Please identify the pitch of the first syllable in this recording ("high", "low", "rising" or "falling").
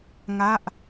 falling